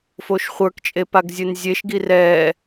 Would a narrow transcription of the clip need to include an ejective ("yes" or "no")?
yes